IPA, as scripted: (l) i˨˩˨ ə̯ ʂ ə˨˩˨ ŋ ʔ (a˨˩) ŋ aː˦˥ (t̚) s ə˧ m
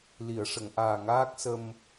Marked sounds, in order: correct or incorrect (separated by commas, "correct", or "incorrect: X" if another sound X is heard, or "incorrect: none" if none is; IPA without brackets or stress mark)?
correct, incorrect: aː˨˩, incorrect: k̚